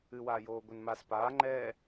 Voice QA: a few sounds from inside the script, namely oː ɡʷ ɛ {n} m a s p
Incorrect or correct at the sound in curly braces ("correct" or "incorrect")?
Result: correct